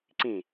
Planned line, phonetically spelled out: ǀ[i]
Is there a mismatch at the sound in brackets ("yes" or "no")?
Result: yes